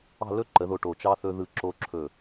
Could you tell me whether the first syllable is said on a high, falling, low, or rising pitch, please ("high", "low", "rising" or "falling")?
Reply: falling